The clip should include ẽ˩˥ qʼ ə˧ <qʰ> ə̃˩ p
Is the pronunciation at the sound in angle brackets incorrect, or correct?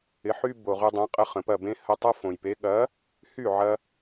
incorrect